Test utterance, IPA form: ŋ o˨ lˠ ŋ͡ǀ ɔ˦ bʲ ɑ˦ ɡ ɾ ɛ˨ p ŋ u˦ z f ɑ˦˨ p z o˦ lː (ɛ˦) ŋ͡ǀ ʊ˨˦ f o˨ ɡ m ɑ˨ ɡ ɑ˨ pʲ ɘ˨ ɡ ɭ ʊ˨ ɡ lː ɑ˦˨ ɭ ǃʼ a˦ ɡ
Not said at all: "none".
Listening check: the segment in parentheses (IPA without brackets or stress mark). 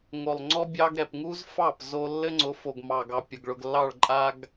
ɘ˦